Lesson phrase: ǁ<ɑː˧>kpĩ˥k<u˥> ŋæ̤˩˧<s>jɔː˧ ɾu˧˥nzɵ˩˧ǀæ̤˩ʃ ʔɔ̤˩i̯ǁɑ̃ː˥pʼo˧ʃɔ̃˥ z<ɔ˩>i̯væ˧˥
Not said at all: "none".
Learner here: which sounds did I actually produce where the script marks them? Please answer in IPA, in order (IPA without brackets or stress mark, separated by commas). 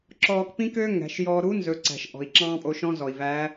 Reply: ɔː˧, ø˥, ʃ, ɔ˩